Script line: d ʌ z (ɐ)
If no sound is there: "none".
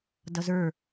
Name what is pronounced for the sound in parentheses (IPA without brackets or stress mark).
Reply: ə˞